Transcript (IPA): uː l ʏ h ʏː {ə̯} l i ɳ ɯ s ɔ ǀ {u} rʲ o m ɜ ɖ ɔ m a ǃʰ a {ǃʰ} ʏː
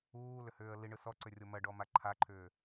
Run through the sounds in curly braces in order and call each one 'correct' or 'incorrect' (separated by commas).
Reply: correct, incorrect, correct